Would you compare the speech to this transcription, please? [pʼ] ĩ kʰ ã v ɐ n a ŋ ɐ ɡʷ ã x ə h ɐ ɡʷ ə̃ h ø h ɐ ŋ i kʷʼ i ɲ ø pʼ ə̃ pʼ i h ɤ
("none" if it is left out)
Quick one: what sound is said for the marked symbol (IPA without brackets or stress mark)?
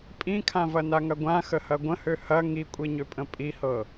pʼ